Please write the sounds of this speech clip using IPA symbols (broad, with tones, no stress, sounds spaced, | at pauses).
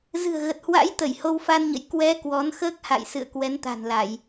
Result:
z ɨ̤˨˩ ə̯ ɣ ə˨˩ t̚ h w a̰˧˥ j t̪ ə˧˩ j h o˧ w f a˧ n ɲ ə̰˧˨ j k w ɛ˨˦ k w ɔ˨˦ n x əː˦˥ k̚ h a̰˧˨ j s ɨ̰˧˨ ə̯ k w ɛ˨˦ n t̪ a̤˨˩ n l a˧˩˨ j